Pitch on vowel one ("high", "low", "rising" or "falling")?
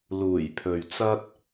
low